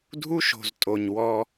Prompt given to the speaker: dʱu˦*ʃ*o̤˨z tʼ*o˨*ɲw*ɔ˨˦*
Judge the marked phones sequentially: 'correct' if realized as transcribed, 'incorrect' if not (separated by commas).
correct, correct, incorrect